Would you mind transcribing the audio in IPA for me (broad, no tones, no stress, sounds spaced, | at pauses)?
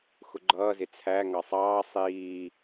x ʊ ɡ͡ǃ ʌː z ɪ t͡sʰ æ ŋ ɑ sˤ ɑː sˤ iː